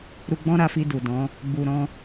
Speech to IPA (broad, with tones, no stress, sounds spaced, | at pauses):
ɾ u˧ ɡ͡b ɔ̃˦ ɾ a˧ f i˧ d u˨ d ɔ̃˨˦ | ɡ͡b u˨ ɾ ɔ̃˧